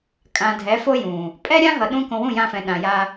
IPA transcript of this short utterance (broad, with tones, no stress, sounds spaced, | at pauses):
kʼ ã˨ dʱ ɛ˨˦ f o˦ j ũ˨ | pʼ ɛ˦ ɾʲ ã˦ ɦ ʌ˨ ɗ ũ˦ k õ˧ w ũ˦˨ j ã˧ f ɛ̃˨ ɗ ã˨ j a˧